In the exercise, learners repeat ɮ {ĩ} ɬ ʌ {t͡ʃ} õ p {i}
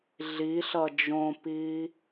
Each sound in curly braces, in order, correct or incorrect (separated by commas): incorrect, incorrect, incorrect